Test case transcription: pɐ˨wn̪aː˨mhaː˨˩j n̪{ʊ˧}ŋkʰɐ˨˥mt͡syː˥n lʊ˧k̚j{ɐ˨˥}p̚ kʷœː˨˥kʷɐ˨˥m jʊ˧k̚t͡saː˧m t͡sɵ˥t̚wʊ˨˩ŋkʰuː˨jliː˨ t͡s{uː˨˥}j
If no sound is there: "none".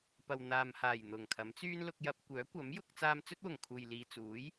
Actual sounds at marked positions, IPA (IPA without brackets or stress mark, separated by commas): ʊ˨˩, ɐ˧, uː˨˥